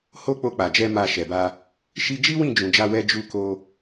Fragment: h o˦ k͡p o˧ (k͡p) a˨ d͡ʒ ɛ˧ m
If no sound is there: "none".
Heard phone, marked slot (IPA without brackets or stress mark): k͡p